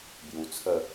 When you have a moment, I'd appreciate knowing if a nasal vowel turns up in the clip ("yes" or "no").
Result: no